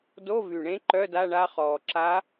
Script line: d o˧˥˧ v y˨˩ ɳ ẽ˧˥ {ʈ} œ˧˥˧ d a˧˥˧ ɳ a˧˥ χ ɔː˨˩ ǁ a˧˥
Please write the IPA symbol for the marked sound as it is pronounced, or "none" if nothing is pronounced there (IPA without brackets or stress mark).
ǃ